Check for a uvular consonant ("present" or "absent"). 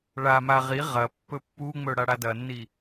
present